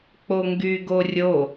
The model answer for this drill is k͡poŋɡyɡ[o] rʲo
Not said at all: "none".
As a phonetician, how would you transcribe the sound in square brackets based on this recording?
o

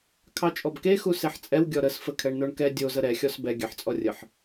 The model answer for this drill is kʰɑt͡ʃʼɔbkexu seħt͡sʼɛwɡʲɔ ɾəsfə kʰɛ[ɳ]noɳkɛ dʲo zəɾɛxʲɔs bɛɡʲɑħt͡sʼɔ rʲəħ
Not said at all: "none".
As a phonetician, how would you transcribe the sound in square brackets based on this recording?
ɳ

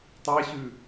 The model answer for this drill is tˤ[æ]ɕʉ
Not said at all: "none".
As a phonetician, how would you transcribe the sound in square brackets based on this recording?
æ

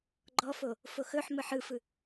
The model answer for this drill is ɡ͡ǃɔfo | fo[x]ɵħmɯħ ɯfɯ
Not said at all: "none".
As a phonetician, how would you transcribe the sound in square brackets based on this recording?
x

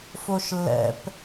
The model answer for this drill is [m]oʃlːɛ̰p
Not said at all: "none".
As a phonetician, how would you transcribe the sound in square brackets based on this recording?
f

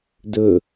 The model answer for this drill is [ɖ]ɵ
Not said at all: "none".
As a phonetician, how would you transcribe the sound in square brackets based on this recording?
d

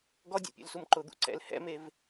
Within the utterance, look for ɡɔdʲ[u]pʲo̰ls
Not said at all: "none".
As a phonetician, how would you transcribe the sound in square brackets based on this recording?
ṵ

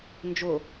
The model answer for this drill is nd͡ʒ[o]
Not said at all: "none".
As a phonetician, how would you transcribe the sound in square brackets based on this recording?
o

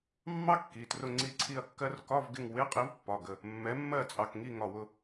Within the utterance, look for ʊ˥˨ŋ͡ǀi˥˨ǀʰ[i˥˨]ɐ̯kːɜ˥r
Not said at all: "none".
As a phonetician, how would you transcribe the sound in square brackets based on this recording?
i˥˨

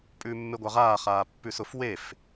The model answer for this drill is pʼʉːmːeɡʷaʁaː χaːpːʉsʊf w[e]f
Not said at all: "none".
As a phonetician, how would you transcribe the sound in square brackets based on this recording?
e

